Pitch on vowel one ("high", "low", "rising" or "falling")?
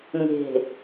low